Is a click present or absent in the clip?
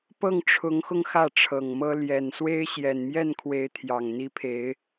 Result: absent